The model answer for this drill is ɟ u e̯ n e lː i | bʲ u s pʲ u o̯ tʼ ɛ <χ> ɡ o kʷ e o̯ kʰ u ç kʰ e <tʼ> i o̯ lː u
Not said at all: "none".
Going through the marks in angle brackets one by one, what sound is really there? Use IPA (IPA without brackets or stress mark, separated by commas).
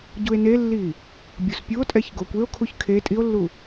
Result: ç, tʼ